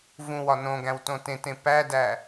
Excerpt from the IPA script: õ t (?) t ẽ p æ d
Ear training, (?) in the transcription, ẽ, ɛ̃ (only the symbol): ẽ